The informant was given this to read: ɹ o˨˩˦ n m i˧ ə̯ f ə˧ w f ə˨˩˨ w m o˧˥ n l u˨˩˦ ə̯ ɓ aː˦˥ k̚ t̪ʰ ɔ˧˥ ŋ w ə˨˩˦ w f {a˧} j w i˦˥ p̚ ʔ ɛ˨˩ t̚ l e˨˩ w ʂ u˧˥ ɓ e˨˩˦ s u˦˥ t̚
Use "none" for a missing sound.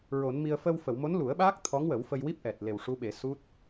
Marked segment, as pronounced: ə˧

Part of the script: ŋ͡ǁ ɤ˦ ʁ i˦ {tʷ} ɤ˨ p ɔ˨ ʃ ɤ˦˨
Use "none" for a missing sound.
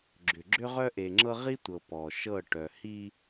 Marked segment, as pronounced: tʷ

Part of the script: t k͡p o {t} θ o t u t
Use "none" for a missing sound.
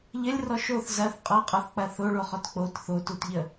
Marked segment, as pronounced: t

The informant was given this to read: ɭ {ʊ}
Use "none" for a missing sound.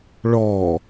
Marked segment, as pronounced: ɔ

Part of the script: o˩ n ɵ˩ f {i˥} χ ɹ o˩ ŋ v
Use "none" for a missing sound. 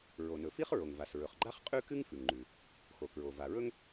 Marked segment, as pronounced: i˥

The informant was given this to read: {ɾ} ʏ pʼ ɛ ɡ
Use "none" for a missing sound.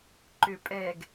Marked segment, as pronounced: ǃ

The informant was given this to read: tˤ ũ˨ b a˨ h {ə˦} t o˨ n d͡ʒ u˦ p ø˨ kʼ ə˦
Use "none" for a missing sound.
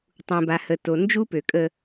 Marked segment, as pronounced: ə˨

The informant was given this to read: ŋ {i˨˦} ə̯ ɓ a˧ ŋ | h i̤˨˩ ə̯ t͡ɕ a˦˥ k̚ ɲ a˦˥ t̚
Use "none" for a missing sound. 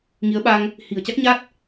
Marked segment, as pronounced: i˨˦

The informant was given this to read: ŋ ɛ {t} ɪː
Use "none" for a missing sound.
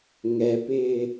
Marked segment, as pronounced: p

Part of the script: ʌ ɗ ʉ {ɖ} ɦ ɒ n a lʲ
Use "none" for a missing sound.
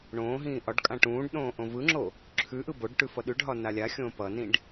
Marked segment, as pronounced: ɖ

